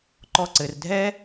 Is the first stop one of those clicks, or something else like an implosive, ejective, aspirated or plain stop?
click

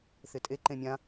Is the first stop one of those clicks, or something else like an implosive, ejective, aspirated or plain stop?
ejective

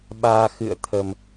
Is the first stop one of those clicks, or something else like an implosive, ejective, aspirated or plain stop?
implosive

